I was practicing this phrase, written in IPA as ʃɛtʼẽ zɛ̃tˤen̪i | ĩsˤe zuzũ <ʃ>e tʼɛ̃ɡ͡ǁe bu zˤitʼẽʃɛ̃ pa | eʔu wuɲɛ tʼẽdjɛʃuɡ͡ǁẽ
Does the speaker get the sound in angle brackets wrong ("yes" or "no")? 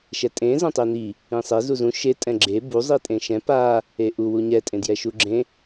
no